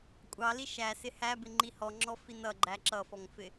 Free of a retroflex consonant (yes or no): yes